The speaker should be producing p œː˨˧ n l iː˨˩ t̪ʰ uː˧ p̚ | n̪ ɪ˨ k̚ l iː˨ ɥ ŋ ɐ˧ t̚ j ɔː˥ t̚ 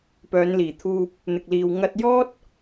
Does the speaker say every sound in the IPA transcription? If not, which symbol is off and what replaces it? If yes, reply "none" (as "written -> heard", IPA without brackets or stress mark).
ɥ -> w